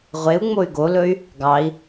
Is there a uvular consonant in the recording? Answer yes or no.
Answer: yes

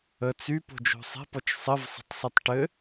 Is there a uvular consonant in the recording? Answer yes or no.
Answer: no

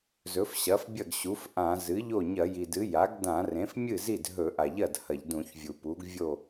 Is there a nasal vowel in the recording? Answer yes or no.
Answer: yes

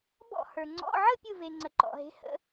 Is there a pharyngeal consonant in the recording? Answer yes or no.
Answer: yes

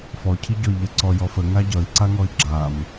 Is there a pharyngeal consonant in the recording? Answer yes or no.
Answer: no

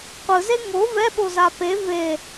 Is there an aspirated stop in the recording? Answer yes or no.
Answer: no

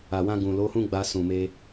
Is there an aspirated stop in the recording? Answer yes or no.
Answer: no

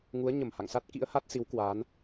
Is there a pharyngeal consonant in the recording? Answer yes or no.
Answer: no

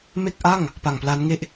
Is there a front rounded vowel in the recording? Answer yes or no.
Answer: no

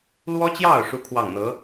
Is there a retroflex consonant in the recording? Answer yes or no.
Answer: yes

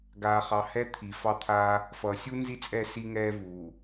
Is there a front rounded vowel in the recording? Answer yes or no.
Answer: no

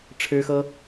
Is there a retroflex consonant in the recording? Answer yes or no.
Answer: yes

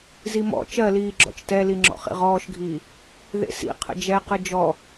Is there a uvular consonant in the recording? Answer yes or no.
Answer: yes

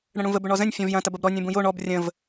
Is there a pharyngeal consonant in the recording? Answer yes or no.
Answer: no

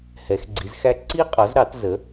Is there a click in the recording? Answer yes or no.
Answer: yes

